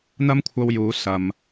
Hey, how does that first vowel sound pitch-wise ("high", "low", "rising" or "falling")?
high